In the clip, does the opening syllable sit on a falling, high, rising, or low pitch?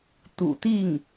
low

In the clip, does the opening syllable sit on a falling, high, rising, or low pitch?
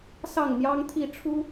falling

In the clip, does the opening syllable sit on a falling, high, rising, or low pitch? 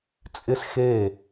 high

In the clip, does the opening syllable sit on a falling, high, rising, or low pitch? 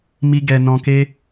high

